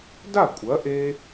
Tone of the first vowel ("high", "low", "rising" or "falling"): falling